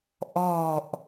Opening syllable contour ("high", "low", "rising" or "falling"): falling